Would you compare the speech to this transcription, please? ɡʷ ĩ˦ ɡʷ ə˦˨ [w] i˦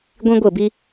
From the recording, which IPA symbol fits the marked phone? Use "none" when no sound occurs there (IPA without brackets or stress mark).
b